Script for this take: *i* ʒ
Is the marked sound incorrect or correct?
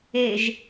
incorrect